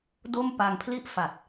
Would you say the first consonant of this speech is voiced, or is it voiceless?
voiced